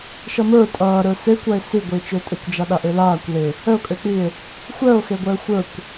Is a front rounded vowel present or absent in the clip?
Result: present